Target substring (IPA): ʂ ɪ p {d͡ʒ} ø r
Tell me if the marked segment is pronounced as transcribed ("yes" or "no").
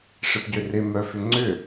no